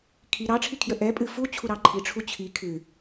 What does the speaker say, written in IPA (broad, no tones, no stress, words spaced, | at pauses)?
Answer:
kʰi ɾɑʈ͡ʂʰikʰjə ʔɛpʼɨ fut͡ɕʰuɾɑ ǃʰiʈ͡ʂʰu t͡ɕʰi kʰɨ